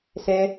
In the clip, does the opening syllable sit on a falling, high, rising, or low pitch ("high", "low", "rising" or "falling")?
high